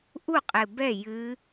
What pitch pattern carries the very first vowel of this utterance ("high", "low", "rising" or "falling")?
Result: falling